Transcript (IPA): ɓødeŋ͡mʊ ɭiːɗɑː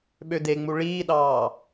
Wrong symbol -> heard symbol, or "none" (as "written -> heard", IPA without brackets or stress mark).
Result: ʊ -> u